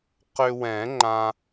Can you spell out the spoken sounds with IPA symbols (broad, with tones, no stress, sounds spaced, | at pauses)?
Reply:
q ʏ˧ w ɛ̃˨˩˦ ŋ͡ǃ ã˧